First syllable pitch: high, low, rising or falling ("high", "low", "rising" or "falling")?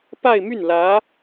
falling